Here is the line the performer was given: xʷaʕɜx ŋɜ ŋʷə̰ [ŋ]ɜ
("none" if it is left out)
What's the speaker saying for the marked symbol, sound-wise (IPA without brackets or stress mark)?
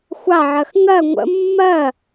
mː